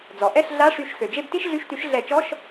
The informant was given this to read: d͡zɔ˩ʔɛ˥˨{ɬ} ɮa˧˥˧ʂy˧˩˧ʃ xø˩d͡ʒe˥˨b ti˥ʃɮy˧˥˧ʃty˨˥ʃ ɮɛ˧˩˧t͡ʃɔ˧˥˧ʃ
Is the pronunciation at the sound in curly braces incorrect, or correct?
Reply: correct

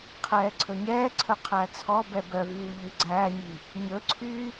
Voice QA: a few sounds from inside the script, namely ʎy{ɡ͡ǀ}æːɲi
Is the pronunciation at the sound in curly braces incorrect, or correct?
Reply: correct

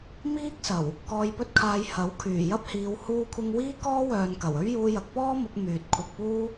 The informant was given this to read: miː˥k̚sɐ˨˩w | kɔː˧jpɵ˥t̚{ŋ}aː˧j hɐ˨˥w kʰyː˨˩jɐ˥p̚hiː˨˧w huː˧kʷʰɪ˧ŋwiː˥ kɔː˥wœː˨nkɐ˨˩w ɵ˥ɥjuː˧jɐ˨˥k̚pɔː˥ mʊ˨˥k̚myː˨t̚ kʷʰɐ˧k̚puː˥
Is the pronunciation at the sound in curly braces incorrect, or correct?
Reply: incorrect: kʰ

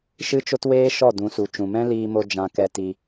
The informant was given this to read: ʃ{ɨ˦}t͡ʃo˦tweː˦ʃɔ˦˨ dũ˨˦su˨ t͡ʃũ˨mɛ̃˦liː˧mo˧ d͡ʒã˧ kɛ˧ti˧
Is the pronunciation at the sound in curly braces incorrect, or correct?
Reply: correct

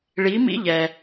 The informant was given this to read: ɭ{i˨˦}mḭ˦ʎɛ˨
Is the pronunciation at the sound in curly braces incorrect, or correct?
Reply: correct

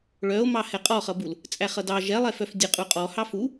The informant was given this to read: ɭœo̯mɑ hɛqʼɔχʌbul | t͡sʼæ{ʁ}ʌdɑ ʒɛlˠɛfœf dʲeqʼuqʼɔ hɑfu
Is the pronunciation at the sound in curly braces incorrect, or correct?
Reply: incorrect: χ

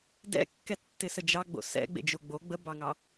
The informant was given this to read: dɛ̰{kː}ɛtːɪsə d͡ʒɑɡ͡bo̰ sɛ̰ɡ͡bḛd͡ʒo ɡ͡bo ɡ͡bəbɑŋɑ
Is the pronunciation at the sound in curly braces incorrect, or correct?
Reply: correct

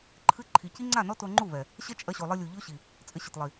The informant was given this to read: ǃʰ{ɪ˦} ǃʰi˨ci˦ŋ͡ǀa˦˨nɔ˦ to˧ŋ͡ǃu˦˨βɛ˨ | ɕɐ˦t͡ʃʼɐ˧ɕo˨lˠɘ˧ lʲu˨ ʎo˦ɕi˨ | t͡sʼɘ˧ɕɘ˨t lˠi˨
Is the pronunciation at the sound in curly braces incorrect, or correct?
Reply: incorrect: ɨ˦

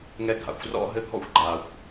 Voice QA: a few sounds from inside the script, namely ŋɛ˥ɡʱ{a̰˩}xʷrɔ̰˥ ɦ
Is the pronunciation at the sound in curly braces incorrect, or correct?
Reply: correct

